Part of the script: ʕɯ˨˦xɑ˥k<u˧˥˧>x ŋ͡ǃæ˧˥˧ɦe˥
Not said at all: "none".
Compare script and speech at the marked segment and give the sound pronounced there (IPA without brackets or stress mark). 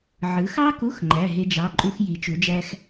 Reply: u˧˥˧